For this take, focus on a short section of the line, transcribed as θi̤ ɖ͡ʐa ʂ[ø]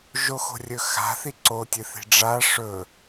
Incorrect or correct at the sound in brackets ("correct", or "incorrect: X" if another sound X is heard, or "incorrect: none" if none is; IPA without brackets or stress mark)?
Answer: incorrect: ɵ